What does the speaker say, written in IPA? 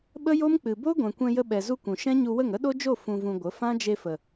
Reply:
ɓə˦jo˦mk͡pɨ˨ bo˦ɡʷɛ̃˨kʷɛ̃˧ jə˧ɓɛ˨zu˧ kʷũ˨ ʃɛ̃˦ɲu˧wə˦˨ŋ ə˦ɗo˦d͡ʒo˦˨ fũ˧vũ˧ ɡʷə˨˦ fã˦d͡ʒe˧fə˨

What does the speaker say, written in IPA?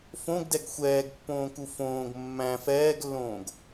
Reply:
fõɡdɛɡ xʷɛːɡpːõːku fõːɡ mːæ̃ fɛːɡlːõːɡ

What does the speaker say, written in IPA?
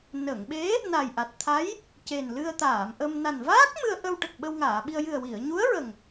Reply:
nə˨˩˨ŋɓe˧˥ | na˨˩jʔa˨˩t̚t̪ʰa˧˥j | ce˨˩nlɨ˧ə̯t̪aː˨˩˨mʔə˧m na˨˩nvaː˦˥k̚ mɨ˧ə̯ʔə˧wʈə˨˩k̚ ɓə˧wŋaː˨˩˨ɓi˧ə̯ jɨ˨˩ə̯wi˨˩˨ə̯ɲu˧˥ə̯ɹə˨˩ŋ

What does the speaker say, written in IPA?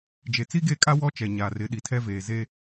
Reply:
d͡ʒe˨t͡si˦ɡe˦˨kʼa˦ wɔ˦t͡ʃɛ˨ ɲa˨rɪ˨˦ɗi˨ tʰɛ˦veː˨ ze˦

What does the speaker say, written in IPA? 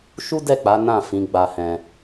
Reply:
ʃu˦dɛ˦˨k͡pa˨˦ nã˦˨ fĩ˨˦ɡ͡ba˧ hɛ̃˧

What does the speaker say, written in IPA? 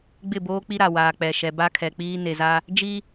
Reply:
ɡ͡bɪ˦˨boː˦k͡pi˦ɾa˨ waː˨k͡pɛ˨ʃɛ˨ ba˦kʰɛ˨k͡piː˦ ne˨za˦ | d͡ʒi˦

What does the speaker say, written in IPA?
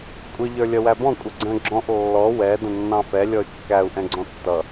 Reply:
kʷʼɪ ʎə˞lʲʌwæbɔ̃ kʷʼəɡ͡ǀə̃ ɡ͡ǁɔ̃ʔ lːɔ wɛ də̃nːɑ̃fɛ lʲɔy̯kːæu̯ ʔɛ̃ɡ͡ǀɔ̃tːʌ

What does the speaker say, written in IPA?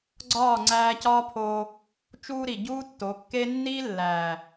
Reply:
ɡ͡ǀɒː˦˨ŋ͡ǀæː˧cɒː˦pʰoː˧ | t͡ʃuː˧ɾi˨ ɟuː˦tːo˨˦kːe˦ nːi˦lːæː˨

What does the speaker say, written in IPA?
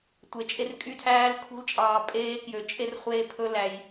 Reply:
tʷe˧t͡ʃʼe˦rkʼy˦ tʰæː˦lkʰṳ˦lt͡ʃʼɑː˧ pʼeː˦kjø˧t͡ʃʼe˦r χʷeː˦pʰɵ˦læ˧j

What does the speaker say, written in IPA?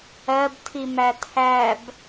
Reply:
ɜbtʰimæ tʰæb

